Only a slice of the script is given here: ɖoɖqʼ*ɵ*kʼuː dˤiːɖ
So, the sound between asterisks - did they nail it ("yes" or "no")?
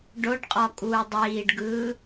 no